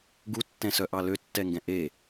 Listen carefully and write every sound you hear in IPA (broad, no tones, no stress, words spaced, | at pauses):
ɡutːɛ̃sœʔɑ løtːɛŋɡɛ̃ ʔe